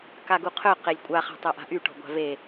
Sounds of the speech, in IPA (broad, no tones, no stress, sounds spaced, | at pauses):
k a ɡ u qʰ œ q e lʲ kʷʼ a χ a̤ tˤ ø ʔ a̤ ʔ y ʈ ɔ̤ ɡʷ a̤ v e